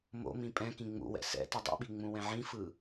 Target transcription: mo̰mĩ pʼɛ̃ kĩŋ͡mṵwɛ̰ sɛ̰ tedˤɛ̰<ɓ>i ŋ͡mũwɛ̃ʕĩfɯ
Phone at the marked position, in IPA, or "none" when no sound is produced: ɓ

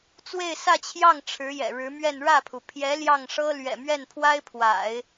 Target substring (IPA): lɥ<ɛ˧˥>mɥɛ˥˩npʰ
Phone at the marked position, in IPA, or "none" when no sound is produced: ɛ̰˨˩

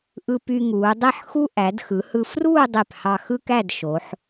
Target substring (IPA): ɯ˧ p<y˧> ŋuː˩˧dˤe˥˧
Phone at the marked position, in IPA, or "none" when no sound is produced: y˧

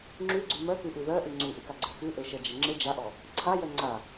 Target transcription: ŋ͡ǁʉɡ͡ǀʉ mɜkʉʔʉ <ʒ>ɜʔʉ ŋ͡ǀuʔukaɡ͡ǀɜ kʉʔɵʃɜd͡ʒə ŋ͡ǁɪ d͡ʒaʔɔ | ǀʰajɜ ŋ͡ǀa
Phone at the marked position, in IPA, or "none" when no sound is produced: ð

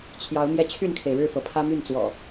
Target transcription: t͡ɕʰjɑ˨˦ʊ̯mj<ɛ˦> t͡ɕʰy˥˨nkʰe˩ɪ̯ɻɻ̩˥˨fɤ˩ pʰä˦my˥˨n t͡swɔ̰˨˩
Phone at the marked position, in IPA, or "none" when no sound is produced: ɛ˧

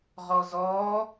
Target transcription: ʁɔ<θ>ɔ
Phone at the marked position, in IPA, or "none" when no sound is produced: z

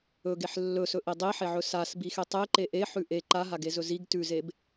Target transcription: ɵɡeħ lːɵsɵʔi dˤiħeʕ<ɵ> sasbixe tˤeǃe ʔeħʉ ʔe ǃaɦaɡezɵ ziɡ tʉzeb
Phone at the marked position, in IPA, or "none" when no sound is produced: ɵ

